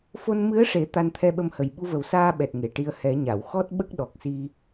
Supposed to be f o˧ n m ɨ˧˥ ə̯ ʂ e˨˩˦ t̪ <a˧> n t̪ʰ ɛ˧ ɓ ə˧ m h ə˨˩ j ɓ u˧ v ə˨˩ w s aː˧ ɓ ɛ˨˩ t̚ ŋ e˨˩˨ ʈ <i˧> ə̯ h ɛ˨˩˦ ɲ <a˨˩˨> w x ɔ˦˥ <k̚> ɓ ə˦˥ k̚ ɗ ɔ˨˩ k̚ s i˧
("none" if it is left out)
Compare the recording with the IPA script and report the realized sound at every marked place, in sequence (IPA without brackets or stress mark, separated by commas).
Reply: a˧, i˧, a˨˩˨, t̚